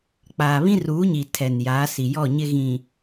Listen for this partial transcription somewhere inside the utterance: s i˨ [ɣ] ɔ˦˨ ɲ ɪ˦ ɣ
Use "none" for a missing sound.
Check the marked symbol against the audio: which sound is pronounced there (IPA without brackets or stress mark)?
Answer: j